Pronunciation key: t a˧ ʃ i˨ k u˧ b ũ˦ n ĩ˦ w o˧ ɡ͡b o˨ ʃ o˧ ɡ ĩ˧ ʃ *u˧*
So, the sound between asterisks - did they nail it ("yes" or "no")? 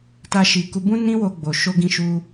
yes